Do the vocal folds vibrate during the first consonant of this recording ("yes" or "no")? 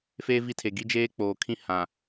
no